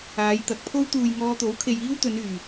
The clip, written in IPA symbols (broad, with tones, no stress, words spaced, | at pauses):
aː˨˧jt̪ɐ˨˥k̚pʰo˥w t̪uː˨j ŋɔː˧t̪o˨˥wkʰe˨j iː˥wt̪ɵ˨˧nyː˨˩